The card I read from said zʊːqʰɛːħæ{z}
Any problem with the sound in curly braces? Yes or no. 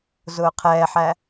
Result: yes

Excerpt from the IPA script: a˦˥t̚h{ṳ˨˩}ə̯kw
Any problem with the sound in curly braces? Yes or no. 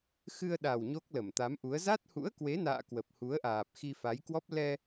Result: yes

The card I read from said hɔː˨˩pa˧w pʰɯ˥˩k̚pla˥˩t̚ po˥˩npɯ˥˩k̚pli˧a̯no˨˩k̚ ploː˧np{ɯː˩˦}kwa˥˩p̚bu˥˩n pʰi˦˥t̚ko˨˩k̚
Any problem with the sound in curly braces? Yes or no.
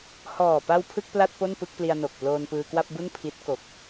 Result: yes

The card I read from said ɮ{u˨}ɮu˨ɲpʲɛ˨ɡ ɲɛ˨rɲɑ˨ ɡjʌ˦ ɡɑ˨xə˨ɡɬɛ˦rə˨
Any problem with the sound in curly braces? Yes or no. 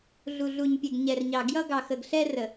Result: no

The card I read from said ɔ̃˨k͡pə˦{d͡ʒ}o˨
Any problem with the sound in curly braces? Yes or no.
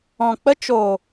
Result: yes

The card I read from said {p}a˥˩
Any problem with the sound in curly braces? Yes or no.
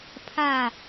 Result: yes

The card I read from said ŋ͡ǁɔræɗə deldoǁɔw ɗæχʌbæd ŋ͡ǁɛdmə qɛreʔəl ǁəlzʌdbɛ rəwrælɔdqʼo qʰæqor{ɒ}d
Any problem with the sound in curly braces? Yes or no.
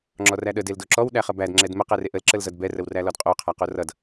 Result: yes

